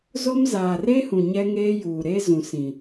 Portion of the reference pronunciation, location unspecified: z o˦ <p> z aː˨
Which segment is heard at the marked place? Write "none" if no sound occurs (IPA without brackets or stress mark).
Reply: m